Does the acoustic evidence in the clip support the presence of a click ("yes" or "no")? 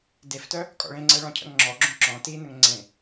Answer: yes